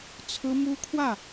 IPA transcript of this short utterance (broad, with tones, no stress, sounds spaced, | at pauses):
t͡sʰ ɹ̩˥ m u˥ kʰ w ä˥˩